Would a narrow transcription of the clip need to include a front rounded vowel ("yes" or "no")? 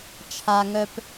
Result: yes